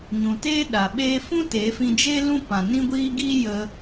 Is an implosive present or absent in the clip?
present